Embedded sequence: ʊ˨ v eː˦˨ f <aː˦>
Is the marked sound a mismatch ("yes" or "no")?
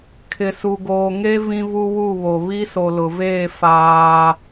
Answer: no